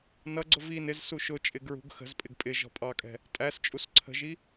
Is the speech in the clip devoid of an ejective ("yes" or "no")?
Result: no